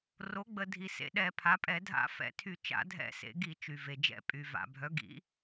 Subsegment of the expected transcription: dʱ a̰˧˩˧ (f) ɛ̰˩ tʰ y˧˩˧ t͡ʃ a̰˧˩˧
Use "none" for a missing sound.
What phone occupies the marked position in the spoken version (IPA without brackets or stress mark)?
f